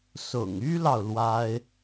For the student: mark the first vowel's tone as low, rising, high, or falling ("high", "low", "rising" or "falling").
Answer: low